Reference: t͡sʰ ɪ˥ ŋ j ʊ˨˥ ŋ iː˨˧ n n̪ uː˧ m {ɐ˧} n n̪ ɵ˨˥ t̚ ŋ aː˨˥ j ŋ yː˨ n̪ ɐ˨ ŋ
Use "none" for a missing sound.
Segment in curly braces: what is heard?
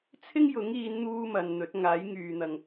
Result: ɐ˨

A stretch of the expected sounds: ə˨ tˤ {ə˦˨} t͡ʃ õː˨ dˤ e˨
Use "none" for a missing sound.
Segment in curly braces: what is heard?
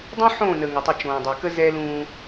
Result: ə˦˨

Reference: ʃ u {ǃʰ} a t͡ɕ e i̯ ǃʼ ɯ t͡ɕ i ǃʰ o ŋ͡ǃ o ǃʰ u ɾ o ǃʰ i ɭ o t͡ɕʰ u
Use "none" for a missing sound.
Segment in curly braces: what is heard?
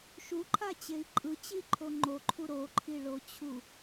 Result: ǃʰ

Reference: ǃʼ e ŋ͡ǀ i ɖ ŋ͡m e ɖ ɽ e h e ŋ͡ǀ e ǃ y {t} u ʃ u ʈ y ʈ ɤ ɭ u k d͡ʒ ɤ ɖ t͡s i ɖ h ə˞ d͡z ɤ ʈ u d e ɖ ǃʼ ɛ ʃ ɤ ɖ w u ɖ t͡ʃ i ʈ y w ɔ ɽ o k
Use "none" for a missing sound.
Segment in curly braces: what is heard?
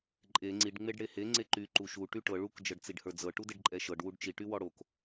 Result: ǃ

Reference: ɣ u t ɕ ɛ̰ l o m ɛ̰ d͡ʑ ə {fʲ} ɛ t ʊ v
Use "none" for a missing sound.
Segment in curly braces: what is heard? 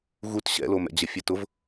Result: fʲ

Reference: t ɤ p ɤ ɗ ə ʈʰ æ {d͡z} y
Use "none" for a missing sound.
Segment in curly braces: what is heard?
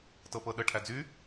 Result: d͡z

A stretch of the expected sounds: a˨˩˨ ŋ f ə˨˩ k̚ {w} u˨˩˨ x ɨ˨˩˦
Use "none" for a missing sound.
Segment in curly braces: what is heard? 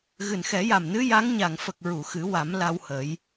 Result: ɹ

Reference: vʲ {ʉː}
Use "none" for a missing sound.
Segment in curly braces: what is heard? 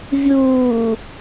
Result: uː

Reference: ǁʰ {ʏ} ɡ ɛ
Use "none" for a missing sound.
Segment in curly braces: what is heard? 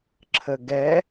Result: ə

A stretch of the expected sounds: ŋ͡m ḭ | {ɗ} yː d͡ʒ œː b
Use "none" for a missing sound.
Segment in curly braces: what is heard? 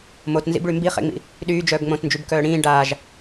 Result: ɗ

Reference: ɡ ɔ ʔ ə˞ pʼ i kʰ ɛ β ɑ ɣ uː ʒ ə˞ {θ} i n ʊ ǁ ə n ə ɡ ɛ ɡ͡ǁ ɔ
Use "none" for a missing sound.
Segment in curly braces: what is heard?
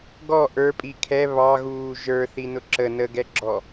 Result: θ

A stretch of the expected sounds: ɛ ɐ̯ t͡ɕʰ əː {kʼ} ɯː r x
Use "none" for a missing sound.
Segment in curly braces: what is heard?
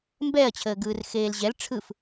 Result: ɡ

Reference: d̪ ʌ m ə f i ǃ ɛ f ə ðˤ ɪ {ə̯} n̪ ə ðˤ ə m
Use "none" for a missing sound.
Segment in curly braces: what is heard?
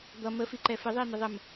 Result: ə̯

